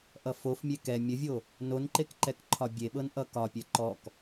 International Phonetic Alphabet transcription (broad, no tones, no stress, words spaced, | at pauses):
ʔʌfofmʲe kɛ mʲəvʲo | nonǃek ǃɛkǃʰɒbʲeɓɤn ʔʌkɒpʲɛ ǃɔk